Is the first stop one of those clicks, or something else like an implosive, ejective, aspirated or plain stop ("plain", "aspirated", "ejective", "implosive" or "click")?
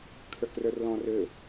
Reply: aspirated